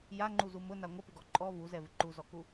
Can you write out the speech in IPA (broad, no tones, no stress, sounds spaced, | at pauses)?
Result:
j a ŋ͡ǃ u z u m ʊ n a ŋʷ ə p ɪ ɡ ɔ ǃʼ ɔ v u z ɛ v ɪ ǃ u z ɔ k u